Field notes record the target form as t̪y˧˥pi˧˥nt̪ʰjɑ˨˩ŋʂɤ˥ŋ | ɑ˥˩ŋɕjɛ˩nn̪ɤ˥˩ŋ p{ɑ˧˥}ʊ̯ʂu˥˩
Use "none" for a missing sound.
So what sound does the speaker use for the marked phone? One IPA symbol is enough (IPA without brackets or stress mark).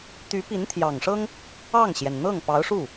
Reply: ɑ˧˥